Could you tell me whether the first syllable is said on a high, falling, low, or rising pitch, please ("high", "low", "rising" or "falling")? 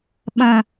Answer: high